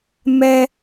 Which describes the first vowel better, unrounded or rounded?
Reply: unrounded